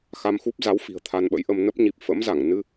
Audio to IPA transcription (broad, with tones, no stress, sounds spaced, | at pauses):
x a˧ m x u˦˥ p̚ z a˨˦ w f i̤˨˩ ə̯ t̪ʰ a˧ n ɓ ə̰˧˥ j ʔ ə˧ m n ə˦˥ p̚ ɲ i˨˩ p̚ f ə̰˧˥ m z a˧˩ ŋ n ɨ˧